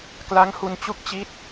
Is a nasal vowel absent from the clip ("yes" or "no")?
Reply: yes